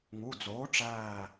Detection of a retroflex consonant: present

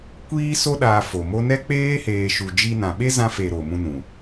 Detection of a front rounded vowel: absent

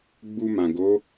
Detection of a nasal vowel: present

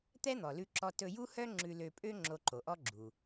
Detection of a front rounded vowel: present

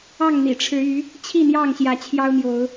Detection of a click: absent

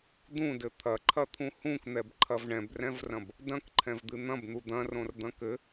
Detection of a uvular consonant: absent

